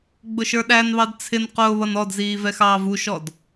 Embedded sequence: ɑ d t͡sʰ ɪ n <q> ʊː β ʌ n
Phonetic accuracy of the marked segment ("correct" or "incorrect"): correct